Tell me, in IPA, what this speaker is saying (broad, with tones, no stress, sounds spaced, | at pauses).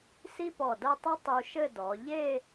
s i˥ p ɔ˧˩ d ɐ˥˧ tˤ ɘ˥ tˤ u˧ ʃ ɘ˥˧ d ɔ˩˧ ʎ e˥˧